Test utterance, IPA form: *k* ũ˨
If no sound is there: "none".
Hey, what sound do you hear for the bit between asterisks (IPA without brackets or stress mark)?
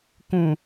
k